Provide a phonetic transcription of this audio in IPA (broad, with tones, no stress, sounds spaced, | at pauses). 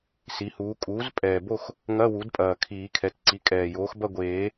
s i˩˥ h uː˩˥ kʼ uː˩˥ z pʼ ɛː˨˩ b o˥˨ x | ŋ ɐ˧˥˧ w u˩˥ d pʼ ɐː˨˩ kʰ iː˨˩˦ kʰ ɛ˩˥ t ǀ i˩˥ kʼ ɛː˨˩ j oː˩˥ x b ɐ˥˨ ɡʷ eː˨˩˦